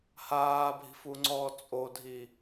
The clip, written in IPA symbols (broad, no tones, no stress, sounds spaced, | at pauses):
h aː bʱ i̤ f u ŋ͡ǀ ɔː t͡sʼ o dʱ i